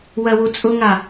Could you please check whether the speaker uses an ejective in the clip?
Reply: yes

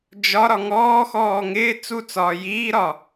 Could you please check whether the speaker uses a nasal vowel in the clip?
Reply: no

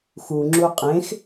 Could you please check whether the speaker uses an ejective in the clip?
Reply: yes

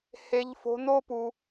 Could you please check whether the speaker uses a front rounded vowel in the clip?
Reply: no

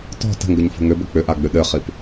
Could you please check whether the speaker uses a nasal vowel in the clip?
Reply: no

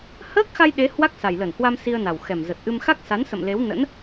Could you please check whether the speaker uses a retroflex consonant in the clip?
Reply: no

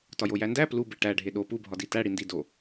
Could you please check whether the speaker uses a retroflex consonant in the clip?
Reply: yes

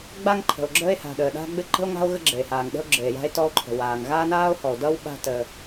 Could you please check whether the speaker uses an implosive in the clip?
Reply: yes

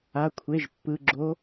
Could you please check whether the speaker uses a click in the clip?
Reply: yes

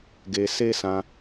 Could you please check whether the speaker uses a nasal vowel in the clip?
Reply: yes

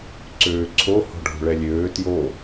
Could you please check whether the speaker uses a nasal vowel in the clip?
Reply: no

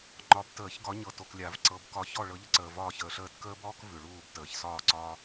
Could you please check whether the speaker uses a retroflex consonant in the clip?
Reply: yes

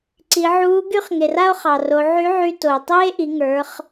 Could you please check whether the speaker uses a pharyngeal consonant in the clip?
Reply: yes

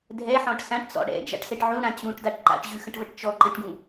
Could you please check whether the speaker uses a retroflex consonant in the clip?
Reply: yes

